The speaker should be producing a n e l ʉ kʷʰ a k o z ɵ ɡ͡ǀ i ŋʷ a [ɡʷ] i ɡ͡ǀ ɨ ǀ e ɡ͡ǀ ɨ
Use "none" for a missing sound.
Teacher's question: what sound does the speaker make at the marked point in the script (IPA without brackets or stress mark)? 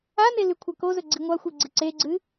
xʷ